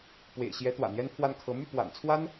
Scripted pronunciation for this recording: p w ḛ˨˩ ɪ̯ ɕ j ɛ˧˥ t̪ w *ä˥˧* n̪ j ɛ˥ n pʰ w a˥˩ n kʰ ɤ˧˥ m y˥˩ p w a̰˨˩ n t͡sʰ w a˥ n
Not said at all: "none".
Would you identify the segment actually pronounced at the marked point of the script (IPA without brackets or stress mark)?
ä̰˨˩